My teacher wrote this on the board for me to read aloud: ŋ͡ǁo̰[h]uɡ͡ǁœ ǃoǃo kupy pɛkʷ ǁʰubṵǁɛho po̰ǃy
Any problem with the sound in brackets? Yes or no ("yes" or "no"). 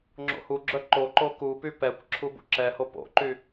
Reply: no